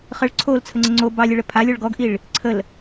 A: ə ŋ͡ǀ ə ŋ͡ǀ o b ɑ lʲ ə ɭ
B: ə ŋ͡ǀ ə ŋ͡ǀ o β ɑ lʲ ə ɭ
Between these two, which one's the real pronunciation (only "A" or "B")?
A